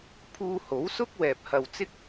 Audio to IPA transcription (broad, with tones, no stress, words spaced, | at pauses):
pʰuː˧ho˨˥wsʊ˥k̚ wɛː˨p̚hɐ˨wt͡sɪ˥k̚